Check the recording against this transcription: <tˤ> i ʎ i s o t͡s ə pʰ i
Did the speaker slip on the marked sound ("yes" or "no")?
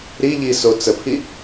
yes